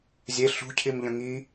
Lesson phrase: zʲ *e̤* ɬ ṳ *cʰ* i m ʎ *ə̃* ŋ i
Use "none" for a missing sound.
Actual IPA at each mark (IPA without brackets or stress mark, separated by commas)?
e, cʰ, ə̃